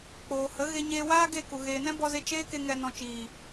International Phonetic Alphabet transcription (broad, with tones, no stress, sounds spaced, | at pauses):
k͡p oː˨ h ə˨˦ ɣ e˧ ɲ eː˧ w aː˦ ɡ e˦˨ k u˨ ɣ eː˨ n ɛ̃˦ b ɔ˧ z e˧ t͡ʃ eː˦ k e˧ ŋ ɛ˨ n ɔ̃˨ t͡ʃ iː˨